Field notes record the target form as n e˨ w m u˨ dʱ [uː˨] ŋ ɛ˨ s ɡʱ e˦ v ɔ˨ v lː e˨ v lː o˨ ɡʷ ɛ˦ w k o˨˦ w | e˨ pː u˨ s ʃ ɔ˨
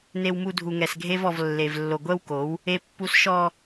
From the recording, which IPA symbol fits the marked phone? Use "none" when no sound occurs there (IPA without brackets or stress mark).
u˨